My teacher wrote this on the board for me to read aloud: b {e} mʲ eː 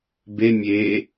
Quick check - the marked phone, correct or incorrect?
correct